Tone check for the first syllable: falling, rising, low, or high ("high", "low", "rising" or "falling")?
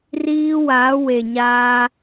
high